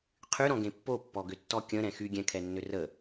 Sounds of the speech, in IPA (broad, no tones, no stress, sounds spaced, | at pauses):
qʰ y ɾ ɔ̃ ɡ ẽ pː o pː ɔ ɡ ʏ tː ɔ kʲ ə̃ ɾ ɛ̃ x y ɡʲ ɛ̃ kʰ ɛ nː ʏ r ə